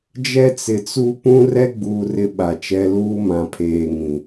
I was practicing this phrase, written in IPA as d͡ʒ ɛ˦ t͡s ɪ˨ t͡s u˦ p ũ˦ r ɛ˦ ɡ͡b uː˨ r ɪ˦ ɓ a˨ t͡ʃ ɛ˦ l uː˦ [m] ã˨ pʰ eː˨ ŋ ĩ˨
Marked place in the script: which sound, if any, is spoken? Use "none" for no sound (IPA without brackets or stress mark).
m